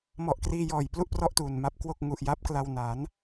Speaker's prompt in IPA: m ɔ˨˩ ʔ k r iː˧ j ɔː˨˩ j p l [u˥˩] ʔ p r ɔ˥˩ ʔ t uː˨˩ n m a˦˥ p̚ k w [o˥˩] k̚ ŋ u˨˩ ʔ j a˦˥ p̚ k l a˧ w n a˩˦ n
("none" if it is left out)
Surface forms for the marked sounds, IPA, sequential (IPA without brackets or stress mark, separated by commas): u˥˩, o˥˩